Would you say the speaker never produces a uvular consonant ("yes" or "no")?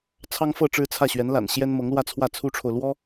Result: yes